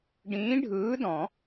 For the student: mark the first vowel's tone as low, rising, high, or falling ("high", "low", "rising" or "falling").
rising